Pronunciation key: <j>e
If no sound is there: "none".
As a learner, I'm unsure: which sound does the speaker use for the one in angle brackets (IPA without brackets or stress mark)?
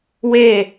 w